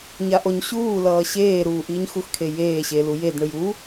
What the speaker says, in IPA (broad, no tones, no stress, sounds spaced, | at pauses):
ɲ a ʔ o ɲ ɕ uː l ʌː ɕ eː ɾ uː ʔ iː ɲ x u x kʰ e j eː ɕ e l u j e d ɳ ɯ j u